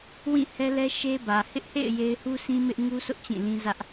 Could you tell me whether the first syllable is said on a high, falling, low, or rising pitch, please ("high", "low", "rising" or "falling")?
falling